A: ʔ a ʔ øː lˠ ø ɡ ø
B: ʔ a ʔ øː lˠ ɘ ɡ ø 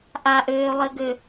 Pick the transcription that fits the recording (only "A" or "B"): B